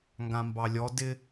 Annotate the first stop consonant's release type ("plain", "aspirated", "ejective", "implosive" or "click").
plain